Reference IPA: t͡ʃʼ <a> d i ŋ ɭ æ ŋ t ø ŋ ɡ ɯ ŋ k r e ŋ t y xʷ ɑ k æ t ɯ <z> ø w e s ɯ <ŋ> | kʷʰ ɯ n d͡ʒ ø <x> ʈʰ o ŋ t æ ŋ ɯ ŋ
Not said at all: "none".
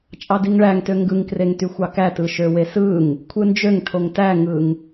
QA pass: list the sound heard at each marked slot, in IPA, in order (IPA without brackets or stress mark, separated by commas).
ɑ, ʃ, ŋ, ŋ